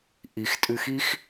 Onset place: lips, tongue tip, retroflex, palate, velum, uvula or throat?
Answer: throat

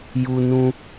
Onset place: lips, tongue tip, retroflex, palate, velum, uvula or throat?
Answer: palate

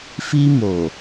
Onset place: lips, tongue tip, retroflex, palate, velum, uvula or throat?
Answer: lips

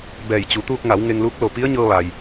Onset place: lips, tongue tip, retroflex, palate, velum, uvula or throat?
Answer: lips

